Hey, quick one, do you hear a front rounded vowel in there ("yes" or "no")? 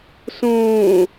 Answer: no